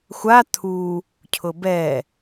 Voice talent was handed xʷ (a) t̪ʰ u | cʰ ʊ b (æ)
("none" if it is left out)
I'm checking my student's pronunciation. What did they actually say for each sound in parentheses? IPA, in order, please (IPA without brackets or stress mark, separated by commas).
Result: a, ɛ